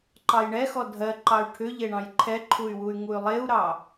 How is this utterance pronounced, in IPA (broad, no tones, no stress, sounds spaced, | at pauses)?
ǃ ɑ j ɳ ɛ x ɔ dʱ ɜ ǃ ɑ y̯ ʈʰ ʏ ʎ e ɳ ɑ̃ j ǃʰ ɛ ǃʰ u y̯ w u y̯ ŋ u y̯ lˠ e u̯ ɾ ɑ